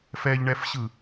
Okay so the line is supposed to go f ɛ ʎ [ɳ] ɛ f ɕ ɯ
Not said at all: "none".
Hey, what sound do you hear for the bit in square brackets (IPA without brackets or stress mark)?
ɳ